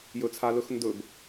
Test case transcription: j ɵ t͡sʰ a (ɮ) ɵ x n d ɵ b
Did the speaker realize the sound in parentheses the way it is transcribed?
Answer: no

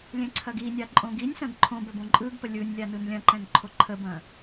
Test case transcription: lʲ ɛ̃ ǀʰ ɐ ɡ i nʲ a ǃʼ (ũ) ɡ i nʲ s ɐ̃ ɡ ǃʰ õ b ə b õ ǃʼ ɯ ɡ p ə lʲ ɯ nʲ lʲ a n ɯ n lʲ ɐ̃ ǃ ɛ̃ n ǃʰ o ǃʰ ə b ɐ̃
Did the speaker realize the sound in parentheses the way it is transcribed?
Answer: no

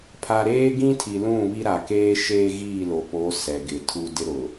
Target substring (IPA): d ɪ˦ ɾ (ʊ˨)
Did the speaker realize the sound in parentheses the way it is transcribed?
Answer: yes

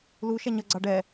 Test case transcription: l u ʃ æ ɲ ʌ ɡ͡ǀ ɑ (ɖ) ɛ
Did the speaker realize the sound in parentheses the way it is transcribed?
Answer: yes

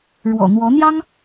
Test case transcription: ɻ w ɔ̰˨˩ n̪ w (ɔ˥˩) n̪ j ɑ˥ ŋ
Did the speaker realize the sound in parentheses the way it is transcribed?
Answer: no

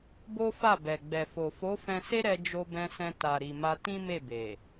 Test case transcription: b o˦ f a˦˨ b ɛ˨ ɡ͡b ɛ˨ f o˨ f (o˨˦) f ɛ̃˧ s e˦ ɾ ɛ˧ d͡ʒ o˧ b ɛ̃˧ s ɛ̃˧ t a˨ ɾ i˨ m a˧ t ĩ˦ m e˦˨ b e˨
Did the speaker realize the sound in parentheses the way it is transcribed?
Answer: yes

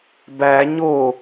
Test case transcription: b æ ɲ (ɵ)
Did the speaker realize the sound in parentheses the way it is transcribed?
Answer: no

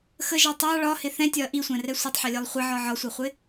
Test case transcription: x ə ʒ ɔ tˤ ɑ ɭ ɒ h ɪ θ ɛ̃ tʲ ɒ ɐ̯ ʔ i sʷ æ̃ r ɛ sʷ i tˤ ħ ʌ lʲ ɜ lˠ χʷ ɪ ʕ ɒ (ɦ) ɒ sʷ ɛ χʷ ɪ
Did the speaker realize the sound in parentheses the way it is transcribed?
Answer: no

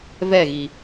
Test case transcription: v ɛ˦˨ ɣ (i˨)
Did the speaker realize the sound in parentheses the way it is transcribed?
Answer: yes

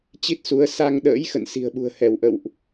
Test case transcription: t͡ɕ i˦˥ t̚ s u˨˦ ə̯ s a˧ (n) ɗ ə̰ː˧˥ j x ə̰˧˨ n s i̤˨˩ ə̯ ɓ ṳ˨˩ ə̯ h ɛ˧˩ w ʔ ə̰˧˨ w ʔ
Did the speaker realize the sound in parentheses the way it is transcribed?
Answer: no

